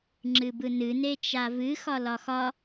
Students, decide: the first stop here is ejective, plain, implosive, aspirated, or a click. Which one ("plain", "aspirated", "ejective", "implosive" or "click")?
click